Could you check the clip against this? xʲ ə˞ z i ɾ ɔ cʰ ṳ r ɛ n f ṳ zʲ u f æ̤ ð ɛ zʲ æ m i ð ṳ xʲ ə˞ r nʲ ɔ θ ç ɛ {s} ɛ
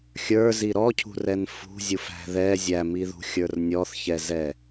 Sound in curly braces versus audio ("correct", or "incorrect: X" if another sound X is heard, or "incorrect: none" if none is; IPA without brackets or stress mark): incorrect: z